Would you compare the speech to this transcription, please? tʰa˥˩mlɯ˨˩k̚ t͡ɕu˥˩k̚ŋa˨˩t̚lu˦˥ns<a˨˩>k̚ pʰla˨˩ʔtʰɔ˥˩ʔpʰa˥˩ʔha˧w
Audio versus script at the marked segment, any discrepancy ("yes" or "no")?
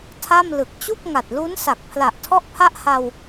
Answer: no